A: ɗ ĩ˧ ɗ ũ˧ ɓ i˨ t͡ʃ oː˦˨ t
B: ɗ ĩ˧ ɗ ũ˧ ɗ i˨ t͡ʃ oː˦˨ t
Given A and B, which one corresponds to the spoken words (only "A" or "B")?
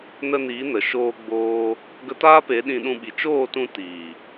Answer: A